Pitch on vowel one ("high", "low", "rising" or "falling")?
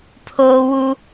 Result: high